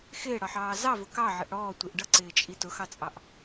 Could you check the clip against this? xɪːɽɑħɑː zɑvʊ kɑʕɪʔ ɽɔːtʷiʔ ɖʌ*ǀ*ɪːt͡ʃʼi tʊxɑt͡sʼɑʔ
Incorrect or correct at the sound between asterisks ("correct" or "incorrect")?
correct